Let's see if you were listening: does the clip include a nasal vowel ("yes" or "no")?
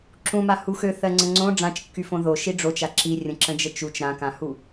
yes